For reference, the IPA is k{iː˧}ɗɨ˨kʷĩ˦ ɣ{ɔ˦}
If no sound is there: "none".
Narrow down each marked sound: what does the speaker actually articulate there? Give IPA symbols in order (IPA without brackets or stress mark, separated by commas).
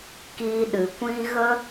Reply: iː˧, ə˦